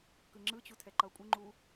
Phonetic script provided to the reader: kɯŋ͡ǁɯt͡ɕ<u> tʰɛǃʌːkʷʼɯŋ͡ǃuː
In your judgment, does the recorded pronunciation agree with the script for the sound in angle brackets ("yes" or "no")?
yes